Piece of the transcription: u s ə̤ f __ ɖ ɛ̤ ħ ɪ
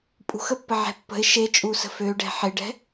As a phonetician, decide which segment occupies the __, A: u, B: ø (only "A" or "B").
B